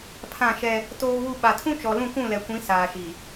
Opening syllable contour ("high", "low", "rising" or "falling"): falling